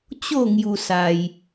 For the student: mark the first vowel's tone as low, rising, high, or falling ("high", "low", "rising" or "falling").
falling